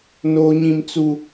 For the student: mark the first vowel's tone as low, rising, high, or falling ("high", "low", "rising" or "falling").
high